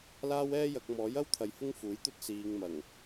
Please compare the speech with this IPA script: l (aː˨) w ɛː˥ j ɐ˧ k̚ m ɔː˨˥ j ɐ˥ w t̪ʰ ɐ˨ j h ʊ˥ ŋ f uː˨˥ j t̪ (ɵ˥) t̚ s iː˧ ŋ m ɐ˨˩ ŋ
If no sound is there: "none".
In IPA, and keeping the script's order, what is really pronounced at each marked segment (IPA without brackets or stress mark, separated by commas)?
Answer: aː˥, ɵ˥